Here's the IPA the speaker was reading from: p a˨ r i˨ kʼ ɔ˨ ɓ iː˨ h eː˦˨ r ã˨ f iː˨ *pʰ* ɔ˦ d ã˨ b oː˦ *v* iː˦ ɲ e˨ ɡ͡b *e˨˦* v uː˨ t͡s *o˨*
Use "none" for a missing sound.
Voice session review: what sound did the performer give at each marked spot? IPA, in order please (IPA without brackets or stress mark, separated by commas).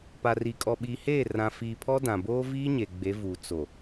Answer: pʰ, v, e˨˦, o˨